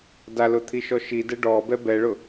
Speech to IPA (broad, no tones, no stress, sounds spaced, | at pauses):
d a l ʊ t̪ʰ i ʃ ɔ ʃ i d ɛ ɖ ɔ b ɛ b ɛ ɭ ʊ